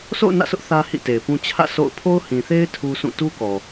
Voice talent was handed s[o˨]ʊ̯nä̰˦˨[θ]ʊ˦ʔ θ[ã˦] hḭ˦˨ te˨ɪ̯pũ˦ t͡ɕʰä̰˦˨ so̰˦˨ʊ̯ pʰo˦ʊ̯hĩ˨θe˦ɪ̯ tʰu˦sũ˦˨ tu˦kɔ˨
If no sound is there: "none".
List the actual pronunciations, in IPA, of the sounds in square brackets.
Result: o̰˦˨, s, ä˦

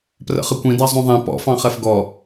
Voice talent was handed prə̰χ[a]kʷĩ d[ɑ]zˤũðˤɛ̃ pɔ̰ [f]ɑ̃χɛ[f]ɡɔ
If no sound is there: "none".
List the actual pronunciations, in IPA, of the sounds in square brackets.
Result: ə, ɑ, f, f

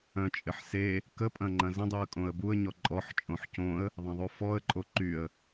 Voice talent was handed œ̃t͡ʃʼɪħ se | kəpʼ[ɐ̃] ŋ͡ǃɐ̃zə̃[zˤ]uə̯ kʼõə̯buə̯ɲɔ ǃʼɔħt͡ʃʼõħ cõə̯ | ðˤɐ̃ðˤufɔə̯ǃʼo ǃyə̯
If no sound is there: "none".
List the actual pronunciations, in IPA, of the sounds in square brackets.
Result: ɐ̃, dˤ

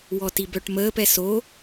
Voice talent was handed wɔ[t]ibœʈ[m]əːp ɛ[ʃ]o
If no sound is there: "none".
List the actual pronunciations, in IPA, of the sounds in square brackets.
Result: t, m, s

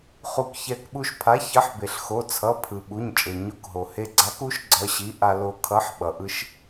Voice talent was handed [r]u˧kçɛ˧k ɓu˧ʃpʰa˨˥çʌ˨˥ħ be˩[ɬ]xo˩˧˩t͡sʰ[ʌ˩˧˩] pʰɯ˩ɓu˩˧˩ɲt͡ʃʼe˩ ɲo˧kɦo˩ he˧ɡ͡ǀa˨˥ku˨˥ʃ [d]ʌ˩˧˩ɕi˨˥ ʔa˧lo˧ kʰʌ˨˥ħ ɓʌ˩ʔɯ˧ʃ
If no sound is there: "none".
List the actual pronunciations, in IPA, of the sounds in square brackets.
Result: χ, ɬ, ʌ˩˧˩, ɡ͡ǀ

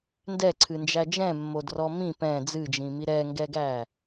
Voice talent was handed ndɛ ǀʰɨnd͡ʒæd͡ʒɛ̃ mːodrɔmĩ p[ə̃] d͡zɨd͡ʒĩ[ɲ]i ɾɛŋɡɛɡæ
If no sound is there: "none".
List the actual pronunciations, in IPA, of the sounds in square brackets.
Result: ɛ̃, m

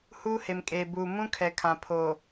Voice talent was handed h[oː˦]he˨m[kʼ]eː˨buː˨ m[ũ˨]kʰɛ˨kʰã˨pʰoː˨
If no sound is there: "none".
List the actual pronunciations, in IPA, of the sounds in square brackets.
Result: uː˦, kʼ, ũ˦

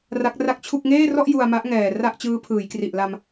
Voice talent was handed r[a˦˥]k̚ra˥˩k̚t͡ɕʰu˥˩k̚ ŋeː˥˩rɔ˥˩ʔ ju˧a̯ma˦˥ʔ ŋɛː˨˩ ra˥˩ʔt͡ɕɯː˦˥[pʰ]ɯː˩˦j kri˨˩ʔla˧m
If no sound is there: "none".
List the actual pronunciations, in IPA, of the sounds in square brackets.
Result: a˦˥, pʰ

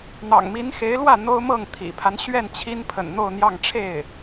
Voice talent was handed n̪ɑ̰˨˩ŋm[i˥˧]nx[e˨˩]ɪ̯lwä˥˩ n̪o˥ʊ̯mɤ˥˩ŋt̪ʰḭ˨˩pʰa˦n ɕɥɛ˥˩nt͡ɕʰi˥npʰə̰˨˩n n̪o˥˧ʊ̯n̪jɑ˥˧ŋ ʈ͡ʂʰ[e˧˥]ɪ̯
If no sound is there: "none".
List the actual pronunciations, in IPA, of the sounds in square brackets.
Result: i˧˥, e˧˥, e˥˩

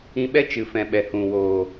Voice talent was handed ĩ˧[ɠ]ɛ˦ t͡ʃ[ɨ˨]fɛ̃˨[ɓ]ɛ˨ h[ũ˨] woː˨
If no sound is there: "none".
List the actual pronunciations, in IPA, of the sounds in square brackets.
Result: ɓ, ɨ˨, ɓ, ũ˨

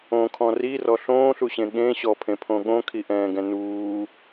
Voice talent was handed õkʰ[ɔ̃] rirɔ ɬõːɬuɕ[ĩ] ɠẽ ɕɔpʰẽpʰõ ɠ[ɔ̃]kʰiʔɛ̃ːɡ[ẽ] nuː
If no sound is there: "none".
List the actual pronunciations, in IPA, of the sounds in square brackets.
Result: ɔ̃, ẽ, õ, ɛ̃

